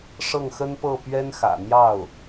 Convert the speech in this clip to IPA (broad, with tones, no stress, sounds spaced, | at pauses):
ʂ ɤ˥˩ ŋ x ə˥ n p ɤ˥˩ p ɥ ɛ˥ n x ä̰˨˩ n̪ j ɑ˥˩ ʊ̯